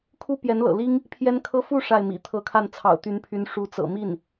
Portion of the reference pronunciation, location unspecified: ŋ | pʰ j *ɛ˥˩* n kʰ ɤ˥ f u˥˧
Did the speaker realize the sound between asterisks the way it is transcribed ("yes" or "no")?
no